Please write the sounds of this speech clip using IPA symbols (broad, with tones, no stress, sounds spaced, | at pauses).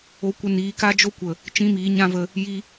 o˧ kʷ ə˧ n iː˨˦ k a˦ d͡ʒ o˦ kʷ ə˨ | t͡ʃ ĩ˦ m iː˨˦ ɲ ã˦ v ə˧ | j i˧